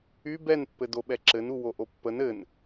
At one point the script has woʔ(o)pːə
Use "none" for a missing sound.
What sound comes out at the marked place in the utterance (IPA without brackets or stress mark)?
o